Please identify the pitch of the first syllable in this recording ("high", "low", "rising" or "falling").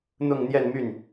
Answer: falling